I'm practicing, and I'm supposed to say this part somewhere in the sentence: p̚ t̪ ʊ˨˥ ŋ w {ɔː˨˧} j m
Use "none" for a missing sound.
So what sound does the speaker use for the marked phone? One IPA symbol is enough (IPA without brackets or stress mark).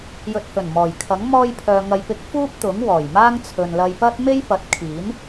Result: ɔː˨˩